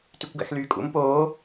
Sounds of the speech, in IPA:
tykʷɡæ̰xlyːkʼṵm poː

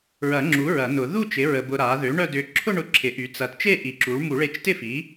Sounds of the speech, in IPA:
ɹɐ˨˩˦ŋ͡ǁu˩˥ ɹɐ˨˩˦nʊ˨˩˦ ðu˥˧t͡ʃɪ˩˥ ɹə˧bʊ˧ɾa˩˥ ðø˩˥ ɳœ˥˧dʏ˧ ǁʰʊ˥˧ɳʊ˧ǁʰɪ˩˥ ʔy˩˥t͡sɐ˧t t͡ʃe˥˧ʔi˨˩˦ǁu˩˥ɭ mu˨˩˦ɭe˧t͡ʃ tɪ˥˧fi˩˥

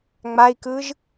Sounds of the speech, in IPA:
ŋ͡mai̯kɯʒ

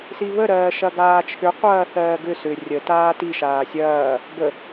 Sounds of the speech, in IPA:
siβəɾɜː ʃɐɡaːt͡ʃʰʏ qʷɐːθɜːɡʏ sʏ rʲə taːti ʃaːsʲɐː | bə

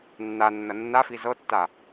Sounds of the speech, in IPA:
nːanːɐ nːafi zɤtːa

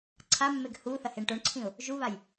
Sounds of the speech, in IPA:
ǀʰamːeɡ hu θɐheɳʈoɳǀʰĩʊ̯ | ʒuβaj

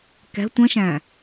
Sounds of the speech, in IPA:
kɛ̤ tʷə̃ʃæ̃

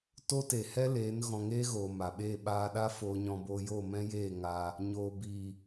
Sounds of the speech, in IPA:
to˦te˨hɛ˦leː˨˦n ɣɔ̃˧ŋeː˦ɣoː˨ ma˨ɓeː˦˨ ɓaː˧ɗa˦ foː˧ɲɔ̃˧boː˧ jo˦˨mɛ̃˦jeː˦˨ ŋaː˧ | ɲoː˨ biː˨

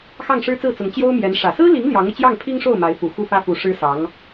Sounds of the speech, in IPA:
xɑ˥˩ŋʂɻ̩˥t͡sɹ̩˥˩t͡sʊ˧˥ŋ t͡ɕjo˥ʊ̯mjɛ˧˥n ʂä˨˩sɹ̩˥li˧˥ŋ ljɑ˧˥ŋɤ˧t͡ɕjɑ˥˩ŋ pʰi˥ŋʂo˥˩ʊ̯ ma˧˥ɪ̯fu˨˩ xu˥˩fä˥fu˧˥ ʂɻ̩˥sɑ˧˥ŋ

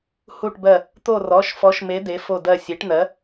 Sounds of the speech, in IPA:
hu˦˨ʈbɜ˦˨ | t̪o˦˨rɔ˩˧˩ʃfɔ˨˥ʃme˨˥ de˨˥fo˦˨dɜ˦˨ sʲe˨˥ʈn̪ɜ˨˥

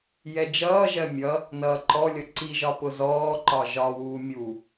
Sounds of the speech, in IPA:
jɛd͡ʒʌːʒɜ mʲʌ | nʌːǃɔlʲʌ ǀiʒɒ pʊzɔːǃɒ ʒɒwuː mʲu

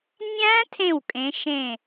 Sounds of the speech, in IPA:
nʲæ̃˦˥ tʰẽ˥˩wkʼẽ˨˦ ʃẽ˧˩

